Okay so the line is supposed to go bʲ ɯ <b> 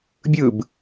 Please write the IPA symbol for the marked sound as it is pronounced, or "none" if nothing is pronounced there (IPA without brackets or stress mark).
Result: b